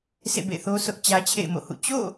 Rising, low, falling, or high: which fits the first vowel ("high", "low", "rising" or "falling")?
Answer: falling